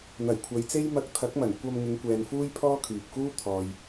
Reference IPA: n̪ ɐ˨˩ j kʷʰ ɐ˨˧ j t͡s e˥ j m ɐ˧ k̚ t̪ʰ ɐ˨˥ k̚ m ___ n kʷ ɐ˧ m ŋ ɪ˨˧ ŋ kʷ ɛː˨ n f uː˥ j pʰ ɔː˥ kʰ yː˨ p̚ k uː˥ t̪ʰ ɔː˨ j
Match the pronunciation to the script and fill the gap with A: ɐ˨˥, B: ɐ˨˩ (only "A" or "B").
B